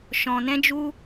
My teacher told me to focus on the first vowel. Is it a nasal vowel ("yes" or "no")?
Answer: yes